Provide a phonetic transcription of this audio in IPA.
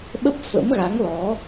ɓ ə˦˥ p̚ f ə̰˧˥ m ɣ a˨˦ ŋ l ɔ˨˦

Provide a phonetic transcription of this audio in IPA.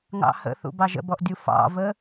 ŋ ɑ̰ h ə̰ θ ṵ b ɑ ʒ ə̰ b ɔ ʔ dʲ u f ɑ̰ v ə

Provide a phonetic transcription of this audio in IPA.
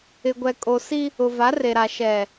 ɪ˨ ɡʷ ɛ˨ kʼ o˨ s i˦ | ʊ˨ v a˨˦ r e˨ ɾ a˨ ʃ ɛ˨

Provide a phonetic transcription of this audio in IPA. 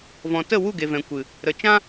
v ɔ̃˨ t ə˦˨ w u˦˨ ɡ e˨ v ɛ̃˨ kʷ ɨ˨ | ɾ ə˨ t͡ʃ ã˦

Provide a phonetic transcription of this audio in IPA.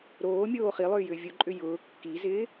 ɾ oː mʲ oː χ i lˠ ʏː j ʏː vʲ o ǃʼ ʏ j ʊː kː i z ɪː

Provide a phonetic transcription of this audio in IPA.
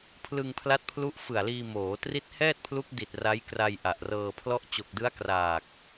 pʰ l ɯ˧ ŋ pʰ l a˦˥ t̚ pʰ l u˦˥ ʔ f ɯ˨˩ a̯ l iː˧ m oː˩˦ t r i˦˥ t̚ h ɛː˥˩ t̚ pʰ l u˦˥ k̚ d i˨˩ t̚ r a˦˥ j k r a˧ j ʔ a˨˩ ʔ r ɤː˧ pʰ l ɔ˦˥ ʔ t͡ɕ o˨˩ k̚ d ɯ˦˥ a̯ k r aː˨˩ k̚

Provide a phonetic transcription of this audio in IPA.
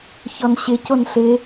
ç ɔ n ɕ ɪ c o n ɬ ɪ

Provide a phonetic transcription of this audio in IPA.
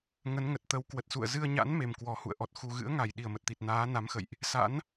ŋ ə˨˦ n ŋ ə˨˩ t̚ t̪ ə˨˦ w k w ə˨˩ t̚ s ṵ˧˨ ə̯ z ɨ˧ ə̯ ɲ a̰˧˥ n m e˨˩ m k w ɔ˨˩ h ṵ˧˨ ə̯ ʔ ɔ˨˩ t̚ x u˨˩ ɣ ɨ̰˧˥ ə̯ ŋ a˧˩ j ɗ i˧˩ ə̯ m ə˨˩ t̚ t̪ i˨˩ t̚ n aː˨˦ n a˨˦ m x ə̰˧˨ j ʔ | s a̰˧˥ n

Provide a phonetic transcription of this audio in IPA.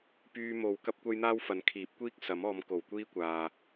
p yː˧ m o˨ w k ɐ˥ p̚ kʷ ɐ˥ j n̪ aː˥ w f ɐ˨˧ n kʰ iː˨˥ p̚ kʷ iː˥ k̚ s ɐ˨˥ m ɔː˨˧ m k o˨˩ w kʷ iː˥ kʷ aː˨

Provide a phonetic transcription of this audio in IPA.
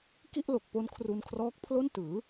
k i˥˩ ʔ l o˨˩ k̚ p o˦˥ n kʰ r u˧ n kʰ r ɔː˦˥ k̚ pʰ l o˥˩ n t ɯː˩˦

